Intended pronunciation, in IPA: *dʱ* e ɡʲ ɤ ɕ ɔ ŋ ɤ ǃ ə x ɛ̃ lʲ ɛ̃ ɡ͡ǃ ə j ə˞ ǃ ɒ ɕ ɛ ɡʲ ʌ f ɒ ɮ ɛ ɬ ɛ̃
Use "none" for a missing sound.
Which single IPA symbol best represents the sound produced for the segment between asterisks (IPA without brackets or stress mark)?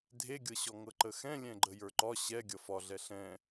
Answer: dʱ